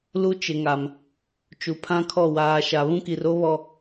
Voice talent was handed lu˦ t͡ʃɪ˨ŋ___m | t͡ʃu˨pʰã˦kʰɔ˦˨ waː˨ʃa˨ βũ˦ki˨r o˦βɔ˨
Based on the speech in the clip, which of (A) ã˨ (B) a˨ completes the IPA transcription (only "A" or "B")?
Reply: B